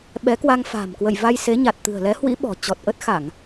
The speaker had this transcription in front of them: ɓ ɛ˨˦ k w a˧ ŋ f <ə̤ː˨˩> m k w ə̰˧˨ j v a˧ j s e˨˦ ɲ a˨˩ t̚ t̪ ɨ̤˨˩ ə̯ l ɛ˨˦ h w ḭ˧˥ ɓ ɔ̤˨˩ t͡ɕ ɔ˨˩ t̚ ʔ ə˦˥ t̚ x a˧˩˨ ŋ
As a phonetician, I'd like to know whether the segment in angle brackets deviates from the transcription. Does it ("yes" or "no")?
yes